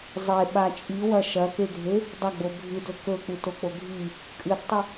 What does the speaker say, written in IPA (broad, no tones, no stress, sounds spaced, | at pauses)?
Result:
zˤ e ɓ a t͡ʃʼ i w ɐ ʃ ɐ k e ɡʱ e | dˤ ɐ ɡ͡b o bʱ ɨ d ɵ k ɵ k͡p u t o k͡p o ɡʱ i | kʼ ɨ d tˤ ʉ